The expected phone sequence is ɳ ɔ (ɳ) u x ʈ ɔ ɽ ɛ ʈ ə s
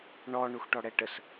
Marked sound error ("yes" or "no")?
no